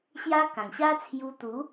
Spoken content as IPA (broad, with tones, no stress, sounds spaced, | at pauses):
ɕ j a˦ k ã˨˩ ŋ ɕ a˦ t͡sʰ j u˧ t̪ u˨˦